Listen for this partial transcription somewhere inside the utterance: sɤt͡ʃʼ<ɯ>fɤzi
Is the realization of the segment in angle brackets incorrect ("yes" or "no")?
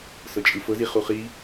no